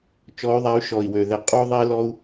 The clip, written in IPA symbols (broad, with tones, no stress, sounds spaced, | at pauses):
t͡ʃ ɔ˨˦ y̯ ðˤ a˨˦ y̯ ʃ ɔ˨˩ i̯ w ø˨˩ ð ɛ˧˩˧ qʼ u˥ ðˤ e˥ l ɔ˥ u̯